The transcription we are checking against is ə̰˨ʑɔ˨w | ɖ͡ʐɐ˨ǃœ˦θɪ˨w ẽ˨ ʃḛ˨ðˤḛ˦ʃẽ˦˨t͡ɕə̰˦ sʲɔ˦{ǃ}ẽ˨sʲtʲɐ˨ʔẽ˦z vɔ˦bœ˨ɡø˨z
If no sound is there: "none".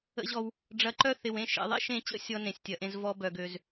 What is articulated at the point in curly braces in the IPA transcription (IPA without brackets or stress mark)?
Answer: n